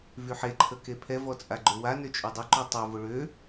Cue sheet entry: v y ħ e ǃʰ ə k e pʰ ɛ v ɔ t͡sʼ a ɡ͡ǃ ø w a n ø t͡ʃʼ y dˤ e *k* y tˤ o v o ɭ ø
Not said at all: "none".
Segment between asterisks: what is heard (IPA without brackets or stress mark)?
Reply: ǃ